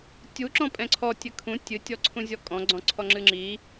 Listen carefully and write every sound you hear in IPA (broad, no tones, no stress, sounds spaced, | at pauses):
tʲ u ǁ ɔ̃ pʼ ɛ̃ ǀʰ ɔ tʲ ɘ kʰ ũ tʲ ɨ tʲ ɔ ǀʰ ũ zʲ ɔ kʼ ɔ̃ ɡ͡ǀ ɔ̃ ǀʰ ɔ ŋ͡ǁ ɨ ŋ͡ǁ i